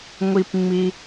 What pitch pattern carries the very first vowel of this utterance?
high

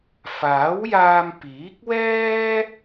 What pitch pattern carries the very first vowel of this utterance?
rising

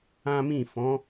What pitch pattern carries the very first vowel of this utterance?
high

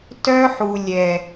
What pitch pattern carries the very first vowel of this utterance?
high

